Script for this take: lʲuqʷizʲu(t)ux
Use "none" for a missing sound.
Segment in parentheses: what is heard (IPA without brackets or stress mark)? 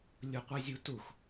t